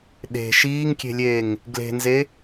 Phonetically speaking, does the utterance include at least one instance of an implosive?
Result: yes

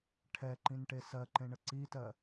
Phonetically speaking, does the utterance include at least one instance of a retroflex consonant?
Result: yes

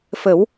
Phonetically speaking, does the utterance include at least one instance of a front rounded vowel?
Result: no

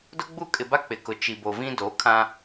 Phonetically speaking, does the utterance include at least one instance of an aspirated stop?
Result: yes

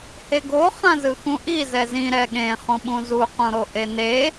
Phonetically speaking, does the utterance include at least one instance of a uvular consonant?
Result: yes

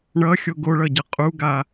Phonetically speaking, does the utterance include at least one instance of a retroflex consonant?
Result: yes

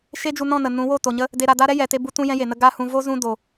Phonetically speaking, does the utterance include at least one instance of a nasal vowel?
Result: yes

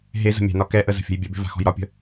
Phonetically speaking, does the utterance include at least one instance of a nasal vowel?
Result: no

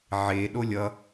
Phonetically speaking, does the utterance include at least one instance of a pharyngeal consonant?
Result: yes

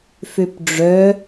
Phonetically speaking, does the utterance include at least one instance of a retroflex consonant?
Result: yes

